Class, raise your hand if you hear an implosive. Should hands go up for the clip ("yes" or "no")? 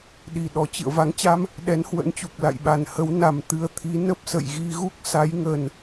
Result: yes